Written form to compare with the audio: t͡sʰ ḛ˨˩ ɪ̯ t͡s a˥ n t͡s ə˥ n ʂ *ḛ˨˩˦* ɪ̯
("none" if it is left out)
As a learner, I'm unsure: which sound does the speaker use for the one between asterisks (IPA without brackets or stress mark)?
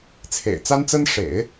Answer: ḛ˨˩˦